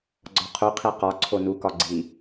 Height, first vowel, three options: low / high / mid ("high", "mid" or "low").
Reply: low